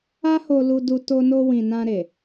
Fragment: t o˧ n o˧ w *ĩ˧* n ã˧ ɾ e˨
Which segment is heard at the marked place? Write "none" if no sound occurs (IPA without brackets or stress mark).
ĩ˨